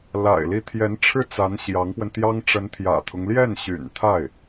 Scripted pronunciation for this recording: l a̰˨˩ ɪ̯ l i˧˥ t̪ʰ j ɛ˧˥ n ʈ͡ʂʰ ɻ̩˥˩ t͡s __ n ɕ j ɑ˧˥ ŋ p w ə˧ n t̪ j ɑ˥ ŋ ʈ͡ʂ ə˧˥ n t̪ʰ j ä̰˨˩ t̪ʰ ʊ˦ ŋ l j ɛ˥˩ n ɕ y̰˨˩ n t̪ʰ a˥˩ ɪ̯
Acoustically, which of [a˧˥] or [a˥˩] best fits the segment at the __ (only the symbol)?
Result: a˧˥